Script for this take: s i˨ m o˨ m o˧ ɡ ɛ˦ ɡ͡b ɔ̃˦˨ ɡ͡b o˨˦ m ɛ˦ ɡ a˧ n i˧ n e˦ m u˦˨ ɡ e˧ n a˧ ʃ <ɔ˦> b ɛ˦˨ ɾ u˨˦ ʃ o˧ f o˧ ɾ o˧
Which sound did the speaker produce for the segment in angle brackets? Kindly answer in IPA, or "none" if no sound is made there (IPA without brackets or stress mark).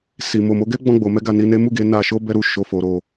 o˦